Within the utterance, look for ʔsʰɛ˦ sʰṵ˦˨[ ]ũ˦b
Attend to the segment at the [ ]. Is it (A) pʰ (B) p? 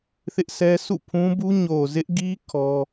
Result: A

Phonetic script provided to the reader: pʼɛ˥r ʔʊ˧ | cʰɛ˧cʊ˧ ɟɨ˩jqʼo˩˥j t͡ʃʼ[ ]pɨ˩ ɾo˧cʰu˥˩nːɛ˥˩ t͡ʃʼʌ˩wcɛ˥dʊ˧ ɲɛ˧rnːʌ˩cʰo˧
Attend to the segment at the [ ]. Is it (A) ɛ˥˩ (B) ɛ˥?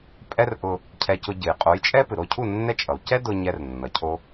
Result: B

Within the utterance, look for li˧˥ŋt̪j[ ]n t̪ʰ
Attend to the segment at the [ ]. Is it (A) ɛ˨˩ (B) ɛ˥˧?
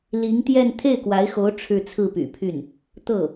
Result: B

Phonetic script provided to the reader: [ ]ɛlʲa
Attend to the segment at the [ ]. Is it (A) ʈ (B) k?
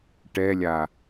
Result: A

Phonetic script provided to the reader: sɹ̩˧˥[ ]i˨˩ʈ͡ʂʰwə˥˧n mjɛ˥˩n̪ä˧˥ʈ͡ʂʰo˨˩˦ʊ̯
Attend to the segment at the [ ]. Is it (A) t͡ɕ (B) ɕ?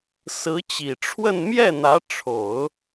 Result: A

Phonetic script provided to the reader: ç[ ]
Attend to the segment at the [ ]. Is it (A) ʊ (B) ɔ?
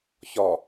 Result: B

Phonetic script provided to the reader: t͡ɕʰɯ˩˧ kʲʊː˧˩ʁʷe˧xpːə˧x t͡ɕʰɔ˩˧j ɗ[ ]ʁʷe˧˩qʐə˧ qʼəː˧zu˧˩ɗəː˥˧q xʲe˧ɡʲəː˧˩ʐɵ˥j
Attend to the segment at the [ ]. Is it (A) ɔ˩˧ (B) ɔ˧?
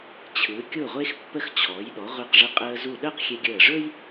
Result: A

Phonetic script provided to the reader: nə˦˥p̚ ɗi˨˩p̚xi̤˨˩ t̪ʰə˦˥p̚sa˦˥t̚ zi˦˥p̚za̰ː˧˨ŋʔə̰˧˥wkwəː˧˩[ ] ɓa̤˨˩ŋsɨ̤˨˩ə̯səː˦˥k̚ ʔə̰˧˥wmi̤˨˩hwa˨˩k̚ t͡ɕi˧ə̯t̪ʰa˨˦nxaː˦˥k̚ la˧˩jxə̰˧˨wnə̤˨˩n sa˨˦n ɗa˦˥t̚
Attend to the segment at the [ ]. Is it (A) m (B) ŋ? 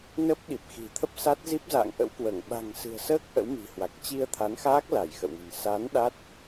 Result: B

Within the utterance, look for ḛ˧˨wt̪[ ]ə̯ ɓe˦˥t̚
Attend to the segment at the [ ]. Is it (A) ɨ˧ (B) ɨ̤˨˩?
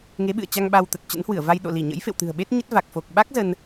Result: B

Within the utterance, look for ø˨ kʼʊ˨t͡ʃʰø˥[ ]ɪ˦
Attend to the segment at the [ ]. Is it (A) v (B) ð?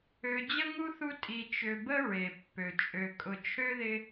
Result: B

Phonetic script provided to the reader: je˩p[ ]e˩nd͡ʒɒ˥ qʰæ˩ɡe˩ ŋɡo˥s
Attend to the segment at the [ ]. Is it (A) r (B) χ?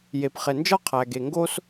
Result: B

